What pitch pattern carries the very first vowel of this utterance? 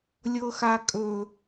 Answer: low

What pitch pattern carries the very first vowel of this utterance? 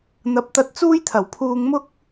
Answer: rising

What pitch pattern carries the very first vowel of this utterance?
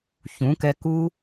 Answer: rising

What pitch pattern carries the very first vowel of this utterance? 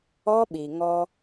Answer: high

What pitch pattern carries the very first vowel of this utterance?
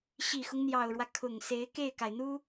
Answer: low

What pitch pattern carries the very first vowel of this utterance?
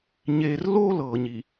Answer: low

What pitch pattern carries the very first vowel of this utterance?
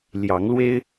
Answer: rising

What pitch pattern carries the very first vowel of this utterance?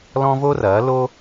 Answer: high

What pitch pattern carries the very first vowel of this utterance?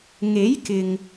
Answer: rising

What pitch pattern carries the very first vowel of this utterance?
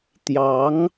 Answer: rising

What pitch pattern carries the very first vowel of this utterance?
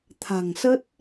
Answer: low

